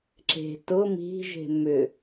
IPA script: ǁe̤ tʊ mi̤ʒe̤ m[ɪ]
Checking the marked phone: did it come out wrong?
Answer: yes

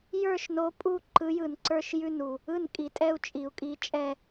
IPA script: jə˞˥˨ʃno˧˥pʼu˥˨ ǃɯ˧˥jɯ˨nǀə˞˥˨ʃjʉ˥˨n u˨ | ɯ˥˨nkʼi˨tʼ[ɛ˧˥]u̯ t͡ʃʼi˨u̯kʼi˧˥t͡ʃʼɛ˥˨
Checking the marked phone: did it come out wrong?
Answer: yes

